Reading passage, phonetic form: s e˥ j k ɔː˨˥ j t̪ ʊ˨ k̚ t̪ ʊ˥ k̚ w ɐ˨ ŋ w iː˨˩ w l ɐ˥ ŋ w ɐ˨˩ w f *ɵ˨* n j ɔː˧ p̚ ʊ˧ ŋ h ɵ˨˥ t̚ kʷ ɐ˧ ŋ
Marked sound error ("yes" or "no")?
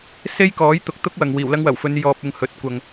yes